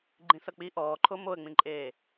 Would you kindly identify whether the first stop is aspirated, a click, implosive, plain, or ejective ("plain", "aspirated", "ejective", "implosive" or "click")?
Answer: click